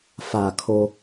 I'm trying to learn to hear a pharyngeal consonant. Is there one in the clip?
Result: no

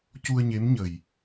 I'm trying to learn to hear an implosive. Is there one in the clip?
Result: no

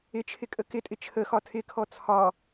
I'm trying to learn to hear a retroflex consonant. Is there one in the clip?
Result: no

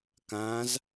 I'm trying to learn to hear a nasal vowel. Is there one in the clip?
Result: yes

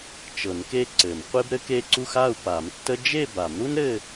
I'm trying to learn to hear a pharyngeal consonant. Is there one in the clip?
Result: no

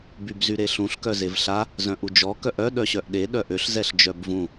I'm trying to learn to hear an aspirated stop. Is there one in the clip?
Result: no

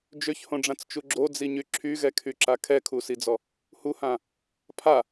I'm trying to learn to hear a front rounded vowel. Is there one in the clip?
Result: yes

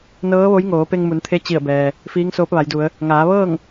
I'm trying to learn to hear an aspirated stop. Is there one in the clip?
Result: yes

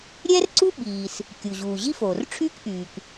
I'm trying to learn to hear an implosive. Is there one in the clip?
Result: yes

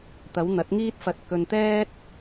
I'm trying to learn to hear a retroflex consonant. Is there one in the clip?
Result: no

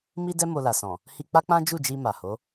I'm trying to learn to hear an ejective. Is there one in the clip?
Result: no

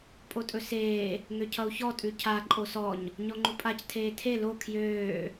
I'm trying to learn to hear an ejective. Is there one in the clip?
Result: yes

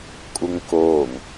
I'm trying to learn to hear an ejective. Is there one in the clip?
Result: yes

